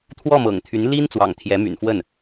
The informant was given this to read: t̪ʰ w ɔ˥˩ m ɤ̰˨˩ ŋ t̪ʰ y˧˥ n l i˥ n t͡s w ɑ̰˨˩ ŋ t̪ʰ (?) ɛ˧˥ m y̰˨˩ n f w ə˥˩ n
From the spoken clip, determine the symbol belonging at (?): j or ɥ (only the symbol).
j